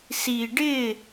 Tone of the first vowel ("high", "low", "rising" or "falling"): low